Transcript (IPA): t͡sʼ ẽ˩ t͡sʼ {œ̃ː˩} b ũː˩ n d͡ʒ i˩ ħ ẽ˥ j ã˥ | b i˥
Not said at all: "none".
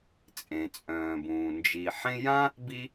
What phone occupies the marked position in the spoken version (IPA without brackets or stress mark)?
œ̃ː˩